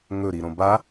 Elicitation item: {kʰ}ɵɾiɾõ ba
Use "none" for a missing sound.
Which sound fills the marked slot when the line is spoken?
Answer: ŋ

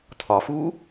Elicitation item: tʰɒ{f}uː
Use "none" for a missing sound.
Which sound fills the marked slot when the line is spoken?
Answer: f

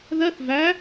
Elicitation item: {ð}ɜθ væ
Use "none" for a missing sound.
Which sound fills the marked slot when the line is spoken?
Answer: ð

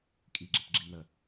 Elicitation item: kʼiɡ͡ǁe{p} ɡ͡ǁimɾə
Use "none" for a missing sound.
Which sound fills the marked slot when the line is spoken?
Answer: p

